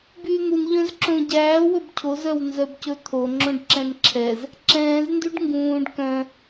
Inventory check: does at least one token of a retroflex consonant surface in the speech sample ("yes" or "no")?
yes